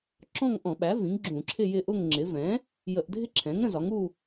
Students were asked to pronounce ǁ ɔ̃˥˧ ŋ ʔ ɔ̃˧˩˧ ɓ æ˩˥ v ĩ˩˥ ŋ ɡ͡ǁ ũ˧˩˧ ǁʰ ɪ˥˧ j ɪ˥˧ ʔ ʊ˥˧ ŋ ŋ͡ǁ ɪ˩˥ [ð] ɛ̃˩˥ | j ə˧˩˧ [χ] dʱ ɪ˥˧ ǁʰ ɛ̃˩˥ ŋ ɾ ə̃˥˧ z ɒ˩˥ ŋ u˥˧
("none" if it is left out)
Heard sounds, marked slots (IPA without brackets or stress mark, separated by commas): v, ʔ